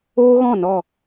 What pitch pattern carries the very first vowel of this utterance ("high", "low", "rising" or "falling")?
high